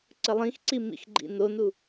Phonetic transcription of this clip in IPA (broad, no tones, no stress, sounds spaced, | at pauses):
ǀ ə lˠ ĩ x ǀ i m ḭ x ɡ͡ǃ ḭ n o n u